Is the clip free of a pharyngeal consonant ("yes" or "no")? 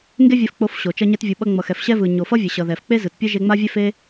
yes